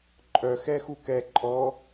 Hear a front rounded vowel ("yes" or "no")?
yes